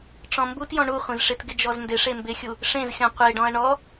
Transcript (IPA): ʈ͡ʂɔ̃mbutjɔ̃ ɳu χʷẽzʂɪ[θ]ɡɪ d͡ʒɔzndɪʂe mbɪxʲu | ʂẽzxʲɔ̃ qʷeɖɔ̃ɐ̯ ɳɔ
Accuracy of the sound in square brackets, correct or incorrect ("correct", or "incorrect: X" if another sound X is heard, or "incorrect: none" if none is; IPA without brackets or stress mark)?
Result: incorrect: t